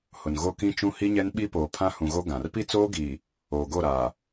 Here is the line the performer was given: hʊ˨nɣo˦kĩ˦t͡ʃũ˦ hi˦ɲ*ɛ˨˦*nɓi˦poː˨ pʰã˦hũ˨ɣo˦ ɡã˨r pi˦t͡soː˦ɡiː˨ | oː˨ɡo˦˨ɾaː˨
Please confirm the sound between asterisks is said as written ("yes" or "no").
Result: no